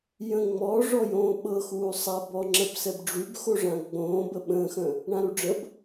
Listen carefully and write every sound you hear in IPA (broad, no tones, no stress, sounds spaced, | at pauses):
j ə̃ ŋ͡m ɔ ʐ ɔ j õː ɓ ɤ x uː sˤ a b ɔ ŋ͡ǁ ə b s ɛ b ɖ͡ʐ y b x o ʐ ã ɡ͡b õː b ə ɓ ə̃ː x ə̃ | ɳ ã ɾ u ɖ͡ʐ ə b